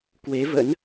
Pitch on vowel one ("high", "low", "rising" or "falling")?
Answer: rising